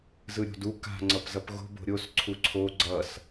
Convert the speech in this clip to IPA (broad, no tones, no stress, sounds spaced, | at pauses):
z ɯ ɾʲ o̤ d u k a̤ ŋ͡ǀ ʌ p z ʌ p ɣ o̤ b o̤ ɾʲ o s ǀʰ u ǀʰ o ɡ͡ǀ ʌ s